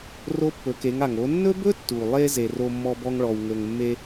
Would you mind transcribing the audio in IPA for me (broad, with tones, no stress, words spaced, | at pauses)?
ro˧˥pːɵ˩˧ke˩˧ŋa˩ŋ o˩˧ nːɵ˥bɵ˥ tːu˩lˠe˧ ze˩ ro˧mːɔ˧bɔ˧ŋ ɭɔ˩wŋɵ˩ŋmːe˧